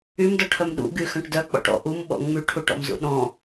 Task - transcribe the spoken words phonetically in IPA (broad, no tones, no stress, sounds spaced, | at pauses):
y m d ɔ ʈʰ œ m ɗ ṵ ɡ y x œ̃ ʈ d œ k͡p ɔ̰ ʈ ɔ̰ ʔ u m ɓ ɔ̰ ŋ͡m y ʈʰ u ʈ ɔ̰ m z ṵ ɗ ɔ̃